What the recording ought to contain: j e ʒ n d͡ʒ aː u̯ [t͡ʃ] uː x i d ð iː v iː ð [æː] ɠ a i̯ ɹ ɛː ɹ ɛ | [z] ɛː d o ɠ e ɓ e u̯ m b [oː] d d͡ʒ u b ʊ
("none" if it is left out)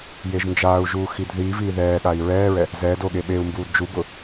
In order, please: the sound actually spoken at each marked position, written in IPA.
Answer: ʒ, ɛː, z, uː

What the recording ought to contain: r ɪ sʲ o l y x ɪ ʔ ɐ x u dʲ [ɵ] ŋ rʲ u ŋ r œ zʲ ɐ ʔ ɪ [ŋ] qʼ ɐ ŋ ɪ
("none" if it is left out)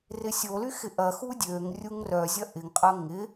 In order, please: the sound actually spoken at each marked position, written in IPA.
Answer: ø, ŋ

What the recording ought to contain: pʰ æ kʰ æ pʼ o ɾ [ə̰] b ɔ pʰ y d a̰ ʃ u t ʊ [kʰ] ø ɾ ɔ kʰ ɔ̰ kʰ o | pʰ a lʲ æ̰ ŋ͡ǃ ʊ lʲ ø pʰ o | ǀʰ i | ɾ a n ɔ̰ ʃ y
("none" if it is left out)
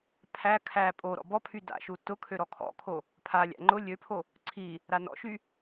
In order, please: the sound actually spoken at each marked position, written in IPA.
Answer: ɔ̰, kʰ

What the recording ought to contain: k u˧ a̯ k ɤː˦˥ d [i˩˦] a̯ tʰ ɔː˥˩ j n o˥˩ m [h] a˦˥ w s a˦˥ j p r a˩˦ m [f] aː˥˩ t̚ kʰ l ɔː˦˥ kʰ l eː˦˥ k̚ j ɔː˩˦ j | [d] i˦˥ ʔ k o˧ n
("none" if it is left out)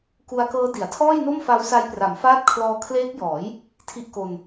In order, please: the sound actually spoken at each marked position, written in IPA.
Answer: i˩˦, f, f, tʰ

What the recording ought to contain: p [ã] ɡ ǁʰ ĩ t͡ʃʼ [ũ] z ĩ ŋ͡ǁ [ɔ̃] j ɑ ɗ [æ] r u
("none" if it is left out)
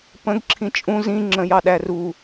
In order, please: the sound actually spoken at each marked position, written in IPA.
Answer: ə̃, ũ, ə̃, æ

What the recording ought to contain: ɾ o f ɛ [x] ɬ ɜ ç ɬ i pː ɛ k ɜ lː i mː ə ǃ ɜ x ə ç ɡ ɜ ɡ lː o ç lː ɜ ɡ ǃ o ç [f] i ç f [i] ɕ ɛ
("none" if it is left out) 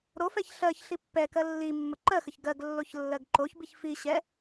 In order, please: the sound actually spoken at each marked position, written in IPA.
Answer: ç, b, i

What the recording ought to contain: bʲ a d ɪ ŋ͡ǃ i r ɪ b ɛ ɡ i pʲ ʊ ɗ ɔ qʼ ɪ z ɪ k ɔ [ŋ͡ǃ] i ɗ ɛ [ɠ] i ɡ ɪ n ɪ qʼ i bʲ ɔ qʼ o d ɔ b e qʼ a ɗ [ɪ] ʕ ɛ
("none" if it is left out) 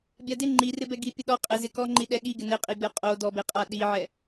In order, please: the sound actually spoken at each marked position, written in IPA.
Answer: ŋ͡ǃ, ɠ, i

